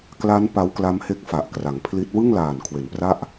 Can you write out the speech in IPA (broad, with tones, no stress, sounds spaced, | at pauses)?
k l a˦˥ n p a˦˥ w k l a˦˥ m h e˦˥ k̚ f a˨˩ ʔ k r a˩˦ ŋ pʰ l i˦˥ t̚ w ɯ˥˩ ŋ l aː˨˩ n kʰ w e˩˦ n p r a˥˩ ʔ